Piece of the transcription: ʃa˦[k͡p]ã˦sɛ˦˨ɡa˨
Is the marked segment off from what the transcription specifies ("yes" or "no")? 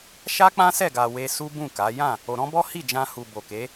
no